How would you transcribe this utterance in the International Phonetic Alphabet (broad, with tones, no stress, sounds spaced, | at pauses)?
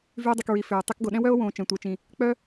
v y˧ e̯ dˤ y˨ k ɹ i˨ f ʏː˨ o̯ tˤ ɛ˧ k ɡ o˨ ɗ ɛ̃˦ w œ˦ o̯ w õː˨ t͡ʃ ɛ̃˨ tʷ ɛ˨ t͡ʃ ĩ˨ | k͡p œ˦